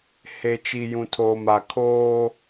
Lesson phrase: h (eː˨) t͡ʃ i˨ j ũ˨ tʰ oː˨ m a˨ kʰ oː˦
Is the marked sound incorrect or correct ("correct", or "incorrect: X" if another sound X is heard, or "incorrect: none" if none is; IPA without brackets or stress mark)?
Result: incorrect: e˨